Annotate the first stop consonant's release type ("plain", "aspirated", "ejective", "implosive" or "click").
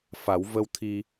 aspirated